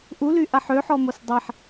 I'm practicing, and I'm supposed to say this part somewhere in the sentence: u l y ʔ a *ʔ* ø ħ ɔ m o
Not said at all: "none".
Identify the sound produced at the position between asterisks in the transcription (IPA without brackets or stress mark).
ħ